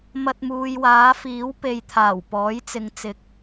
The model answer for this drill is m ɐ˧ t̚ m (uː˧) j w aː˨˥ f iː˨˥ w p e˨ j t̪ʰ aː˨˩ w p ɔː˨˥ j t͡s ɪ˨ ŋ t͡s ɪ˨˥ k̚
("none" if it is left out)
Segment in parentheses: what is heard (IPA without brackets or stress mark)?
uː˨